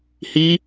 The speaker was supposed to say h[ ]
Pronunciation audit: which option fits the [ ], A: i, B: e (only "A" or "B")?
A